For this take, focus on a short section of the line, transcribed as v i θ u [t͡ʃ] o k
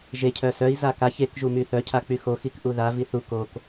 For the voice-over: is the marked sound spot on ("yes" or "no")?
no